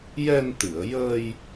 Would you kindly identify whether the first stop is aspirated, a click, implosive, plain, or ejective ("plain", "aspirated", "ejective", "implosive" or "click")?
plain